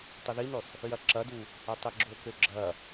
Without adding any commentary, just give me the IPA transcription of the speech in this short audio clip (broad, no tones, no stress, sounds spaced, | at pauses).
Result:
tˤ ə ð i n ø sˤ | j ɐ ǁ ɐ d u | ɐ tˤ e ɡ͡ǁ o k ø ɡ͡ǁ ɐ